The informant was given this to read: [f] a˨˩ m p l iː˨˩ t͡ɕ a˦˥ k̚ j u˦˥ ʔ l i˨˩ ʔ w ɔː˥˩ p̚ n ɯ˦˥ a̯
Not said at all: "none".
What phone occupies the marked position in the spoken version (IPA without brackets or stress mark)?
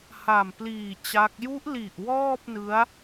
h